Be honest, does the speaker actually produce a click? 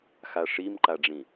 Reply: yes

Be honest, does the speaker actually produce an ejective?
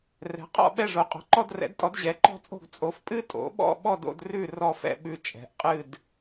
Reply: yes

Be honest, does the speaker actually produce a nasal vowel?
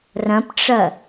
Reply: yes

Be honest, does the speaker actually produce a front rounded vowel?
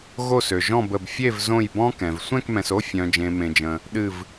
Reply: yes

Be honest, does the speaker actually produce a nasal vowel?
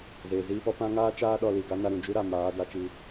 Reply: yes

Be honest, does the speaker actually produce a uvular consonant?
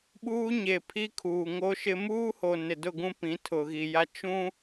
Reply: no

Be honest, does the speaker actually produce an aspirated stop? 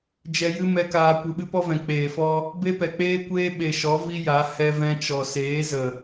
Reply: no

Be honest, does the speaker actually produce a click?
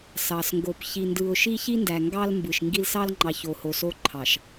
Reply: yes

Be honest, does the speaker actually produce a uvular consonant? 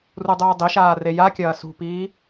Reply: no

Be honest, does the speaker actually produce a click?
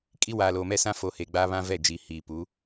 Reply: no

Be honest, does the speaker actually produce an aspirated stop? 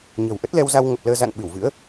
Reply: no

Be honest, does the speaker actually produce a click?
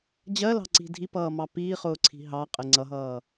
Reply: yes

